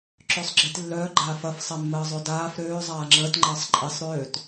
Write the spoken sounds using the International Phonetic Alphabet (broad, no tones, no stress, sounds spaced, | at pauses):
ǁ ø sˤ ɡ͡ǁ i t lː œː ɡ͡ǃ aː f ɐ f sˤ e mː əː zˤ ø d aː f ɾ øː zˤ aː ŋ͡ǁ əː t ŋ͡ǃ əː sˤ ǃʼ i sˤ ɾ øː t